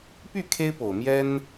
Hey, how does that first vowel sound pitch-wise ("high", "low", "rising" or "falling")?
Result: falling